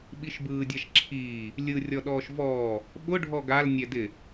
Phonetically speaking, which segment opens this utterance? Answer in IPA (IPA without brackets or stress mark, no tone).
ɓ